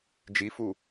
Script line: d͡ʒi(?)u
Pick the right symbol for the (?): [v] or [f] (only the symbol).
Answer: f